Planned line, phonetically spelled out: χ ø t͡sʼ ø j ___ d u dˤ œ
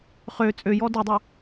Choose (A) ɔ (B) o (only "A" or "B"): A